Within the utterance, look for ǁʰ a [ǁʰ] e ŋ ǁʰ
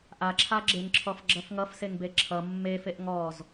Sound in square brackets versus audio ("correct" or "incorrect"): incorrect